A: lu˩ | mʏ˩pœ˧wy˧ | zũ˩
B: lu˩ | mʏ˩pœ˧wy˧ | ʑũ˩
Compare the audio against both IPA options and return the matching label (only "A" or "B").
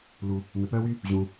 B